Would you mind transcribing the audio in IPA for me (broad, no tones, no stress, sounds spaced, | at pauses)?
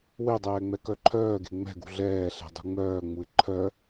w e dˤ ɛː ŋ͡m ɛ k œ ǃʰ œː ɡ e̤ ŋ͡m ɛ̤ ɡ ṳ ɮ ɛː ɬ ɛ̤ dˤ ṳ ŋ͡m œː ŋ͡m u ɪ̯ ǃʰ œ